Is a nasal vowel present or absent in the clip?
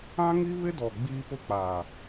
present